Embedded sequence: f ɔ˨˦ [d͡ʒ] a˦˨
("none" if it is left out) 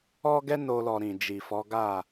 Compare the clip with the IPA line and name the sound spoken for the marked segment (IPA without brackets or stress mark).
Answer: ɡ